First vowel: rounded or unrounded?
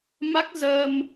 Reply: unrounded